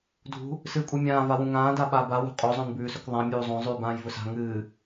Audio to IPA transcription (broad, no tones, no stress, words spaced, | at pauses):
dʱṳ | sɨːkʷʼɨmʲãː vawũŋãː daɓaːba wṳqʼo zˤõnbʉːsɵkðˤã mʲuːzˤõ zˤʉːbãːjvɵsa̤ ŋɨː